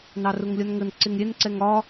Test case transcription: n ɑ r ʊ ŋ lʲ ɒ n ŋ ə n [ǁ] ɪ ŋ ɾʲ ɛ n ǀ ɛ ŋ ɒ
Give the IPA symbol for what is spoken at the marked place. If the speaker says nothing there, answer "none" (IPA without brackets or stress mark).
ǀ